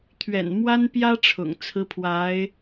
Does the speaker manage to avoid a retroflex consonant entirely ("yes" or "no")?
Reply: no